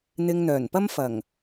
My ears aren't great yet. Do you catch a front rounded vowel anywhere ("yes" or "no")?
yes